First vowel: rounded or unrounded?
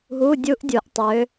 rounded